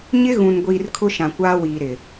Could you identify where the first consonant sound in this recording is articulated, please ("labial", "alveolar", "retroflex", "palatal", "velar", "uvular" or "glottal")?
palatal